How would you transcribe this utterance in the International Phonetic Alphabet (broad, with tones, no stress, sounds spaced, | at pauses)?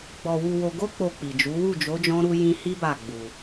ɡ͡b ɔ˧ w u˧ w o˧ ɡ o˦ k͡p o˧ k͡p i˨ d͡ʒ u˨˦ w u˦˨ d͡ʒ o˨˦ d͡ʒ ɔ̃˦ ɾ u˦ j ĩ˦ h i˦ b a˦˨ ɡ͡b u˧